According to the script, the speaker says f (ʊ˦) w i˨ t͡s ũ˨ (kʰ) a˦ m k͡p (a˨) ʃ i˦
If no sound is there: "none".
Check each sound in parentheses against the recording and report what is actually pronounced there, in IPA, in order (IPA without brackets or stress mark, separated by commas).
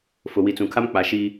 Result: ʊ˨, kʰ, a˨